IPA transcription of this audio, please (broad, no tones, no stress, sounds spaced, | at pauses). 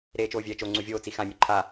ɾ eː t͡ʃ oː vʲ ɛː t͡ʃ o ŋ͡ǀ u vʲ oː t͡s i x ã mʲ u ǃʰ a